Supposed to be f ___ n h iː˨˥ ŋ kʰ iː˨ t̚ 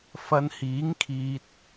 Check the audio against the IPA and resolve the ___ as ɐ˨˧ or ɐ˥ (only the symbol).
ɐ˨˧